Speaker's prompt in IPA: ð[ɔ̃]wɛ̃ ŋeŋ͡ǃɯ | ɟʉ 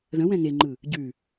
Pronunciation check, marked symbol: incorrect: ə̃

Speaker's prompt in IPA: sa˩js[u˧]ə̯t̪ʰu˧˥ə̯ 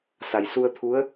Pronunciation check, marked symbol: correct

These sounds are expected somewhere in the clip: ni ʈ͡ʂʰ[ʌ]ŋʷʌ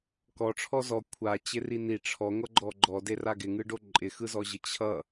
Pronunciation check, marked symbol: incorrect: ɔ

